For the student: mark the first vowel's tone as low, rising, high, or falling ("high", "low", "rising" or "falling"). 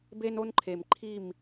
high